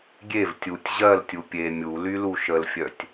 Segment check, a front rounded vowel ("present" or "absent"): present